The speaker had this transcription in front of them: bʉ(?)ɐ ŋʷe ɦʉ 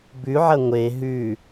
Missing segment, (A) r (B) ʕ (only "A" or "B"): B